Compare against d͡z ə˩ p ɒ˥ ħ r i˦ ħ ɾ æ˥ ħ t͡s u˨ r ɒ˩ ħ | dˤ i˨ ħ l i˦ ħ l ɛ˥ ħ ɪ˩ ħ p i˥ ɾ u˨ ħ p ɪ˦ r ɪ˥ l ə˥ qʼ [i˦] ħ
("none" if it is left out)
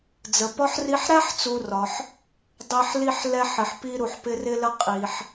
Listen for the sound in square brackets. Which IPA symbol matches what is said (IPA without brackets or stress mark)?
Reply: i˩